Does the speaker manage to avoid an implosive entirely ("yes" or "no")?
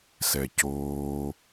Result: yes